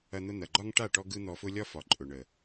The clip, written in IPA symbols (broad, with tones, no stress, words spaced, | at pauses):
ɐ˧n̪ʊ˧n̪ɐ˨ɡ͡ǃɒ˦ŋ ʈa˦˨ʈɔ˧ ɡɯ˦n̪ɔ˧fʊ˦ lʲɒ˦fɒ˨ ǃʼʊ˨ɳə˨